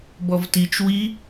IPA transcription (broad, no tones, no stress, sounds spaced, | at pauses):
b ɔ v t i t͡ʃ w i